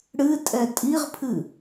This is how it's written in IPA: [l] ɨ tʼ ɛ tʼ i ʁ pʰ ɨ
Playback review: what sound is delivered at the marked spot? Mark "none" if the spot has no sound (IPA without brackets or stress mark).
ɽ